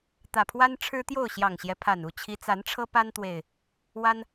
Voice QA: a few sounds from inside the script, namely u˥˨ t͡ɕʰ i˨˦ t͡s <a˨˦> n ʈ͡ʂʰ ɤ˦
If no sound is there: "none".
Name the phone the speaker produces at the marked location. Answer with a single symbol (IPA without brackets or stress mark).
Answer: a˨˦